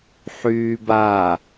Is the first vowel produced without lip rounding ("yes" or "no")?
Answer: no